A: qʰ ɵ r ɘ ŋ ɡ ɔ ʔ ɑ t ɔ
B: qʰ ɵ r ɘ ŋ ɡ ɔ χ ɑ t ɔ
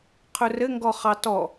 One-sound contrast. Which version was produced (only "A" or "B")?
B